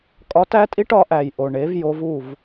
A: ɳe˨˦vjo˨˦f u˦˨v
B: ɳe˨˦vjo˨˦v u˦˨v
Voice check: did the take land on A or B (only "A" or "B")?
B